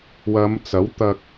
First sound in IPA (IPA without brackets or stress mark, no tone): w